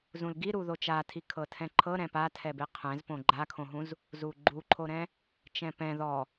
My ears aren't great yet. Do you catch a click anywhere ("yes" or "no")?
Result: yes